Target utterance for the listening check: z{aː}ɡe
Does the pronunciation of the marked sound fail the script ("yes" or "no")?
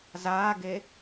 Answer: no